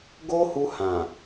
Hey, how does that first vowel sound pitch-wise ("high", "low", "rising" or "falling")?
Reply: high